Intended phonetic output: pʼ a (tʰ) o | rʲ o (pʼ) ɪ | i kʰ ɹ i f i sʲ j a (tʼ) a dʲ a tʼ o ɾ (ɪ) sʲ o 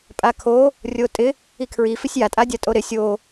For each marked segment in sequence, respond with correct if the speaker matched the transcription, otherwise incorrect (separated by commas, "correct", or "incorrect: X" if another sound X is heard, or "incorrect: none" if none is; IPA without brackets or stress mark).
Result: incorrect: kʰ, incorrect: tʼ, correct, correct